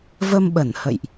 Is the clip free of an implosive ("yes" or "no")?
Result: no